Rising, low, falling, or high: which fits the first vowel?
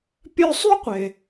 high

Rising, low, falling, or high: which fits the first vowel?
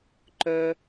high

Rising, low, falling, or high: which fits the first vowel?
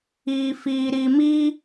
low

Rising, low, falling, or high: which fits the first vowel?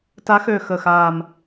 rising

